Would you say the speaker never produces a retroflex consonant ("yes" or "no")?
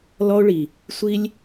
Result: no